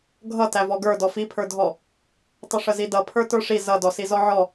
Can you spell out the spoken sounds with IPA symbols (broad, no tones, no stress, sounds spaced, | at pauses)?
ɡʱ ʌ t æ v ɔ ɡ ə˞ d ɔ f i pʰ ə˞ dʱ ɔ | tˤ ə ʂ ə z i d ʌ pʰ ə˞ t ə˞ ʂ i z ʌ d ɔ s i z ɔ ʕ ɔ